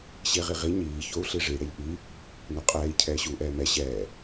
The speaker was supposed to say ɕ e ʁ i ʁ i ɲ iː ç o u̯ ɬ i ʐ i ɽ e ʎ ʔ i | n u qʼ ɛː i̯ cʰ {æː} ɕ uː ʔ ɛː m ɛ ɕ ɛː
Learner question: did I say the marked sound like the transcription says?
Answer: no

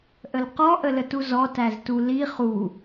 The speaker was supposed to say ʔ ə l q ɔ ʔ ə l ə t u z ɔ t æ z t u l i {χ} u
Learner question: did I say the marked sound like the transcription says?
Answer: yes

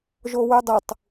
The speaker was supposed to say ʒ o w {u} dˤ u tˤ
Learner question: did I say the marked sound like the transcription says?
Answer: no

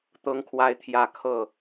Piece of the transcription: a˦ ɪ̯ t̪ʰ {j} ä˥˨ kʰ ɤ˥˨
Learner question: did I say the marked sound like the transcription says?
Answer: yes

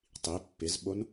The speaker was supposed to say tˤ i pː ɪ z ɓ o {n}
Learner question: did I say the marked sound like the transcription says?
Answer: yes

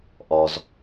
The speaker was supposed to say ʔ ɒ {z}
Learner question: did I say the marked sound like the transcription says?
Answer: yes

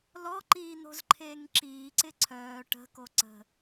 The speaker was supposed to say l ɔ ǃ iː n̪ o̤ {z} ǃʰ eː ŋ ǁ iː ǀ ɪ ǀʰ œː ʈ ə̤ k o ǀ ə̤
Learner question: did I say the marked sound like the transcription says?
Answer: yes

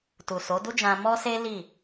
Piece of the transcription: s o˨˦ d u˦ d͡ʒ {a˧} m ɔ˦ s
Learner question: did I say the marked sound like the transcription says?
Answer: no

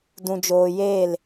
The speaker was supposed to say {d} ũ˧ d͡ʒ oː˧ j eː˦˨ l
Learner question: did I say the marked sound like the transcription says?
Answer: yes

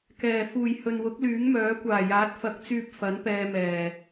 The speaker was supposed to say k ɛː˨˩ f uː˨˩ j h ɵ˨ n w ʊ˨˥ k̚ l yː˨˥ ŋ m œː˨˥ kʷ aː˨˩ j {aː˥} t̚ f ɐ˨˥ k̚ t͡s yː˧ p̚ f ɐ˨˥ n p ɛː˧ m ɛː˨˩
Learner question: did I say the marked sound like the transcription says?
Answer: no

